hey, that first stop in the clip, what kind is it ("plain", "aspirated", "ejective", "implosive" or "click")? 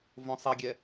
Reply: plain